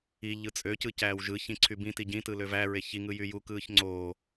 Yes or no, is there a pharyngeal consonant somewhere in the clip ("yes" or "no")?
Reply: no